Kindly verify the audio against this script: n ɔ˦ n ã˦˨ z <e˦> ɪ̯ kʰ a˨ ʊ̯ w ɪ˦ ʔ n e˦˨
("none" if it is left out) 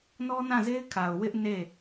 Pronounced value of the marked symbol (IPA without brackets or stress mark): e˦